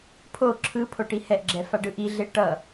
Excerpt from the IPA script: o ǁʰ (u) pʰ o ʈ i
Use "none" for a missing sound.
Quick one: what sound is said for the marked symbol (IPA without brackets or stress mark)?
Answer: ɯ